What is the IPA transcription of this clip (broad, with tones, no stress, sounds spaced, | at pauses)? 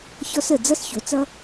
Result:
ç ɔ˧ s ə˨ d͡z ʌ˦ s ç o˨ t͡s ʌ˦